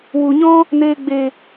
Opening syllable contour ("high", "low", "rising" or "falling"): low